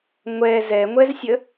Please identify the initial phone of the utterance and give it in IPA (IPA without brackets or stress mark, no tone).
ŋʷ